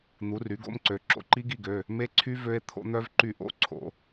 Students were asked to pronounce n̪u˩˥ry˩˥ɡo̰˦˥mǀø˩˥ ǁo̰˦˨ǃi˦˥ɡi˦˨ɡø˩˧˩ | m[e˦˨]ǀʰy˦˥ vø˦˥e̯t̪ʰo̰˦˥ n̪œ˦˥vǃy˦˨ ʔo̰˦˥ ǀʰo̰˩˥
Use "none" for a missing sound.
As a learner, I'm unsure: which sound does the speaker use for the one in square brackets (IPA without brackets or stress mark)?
e˦˥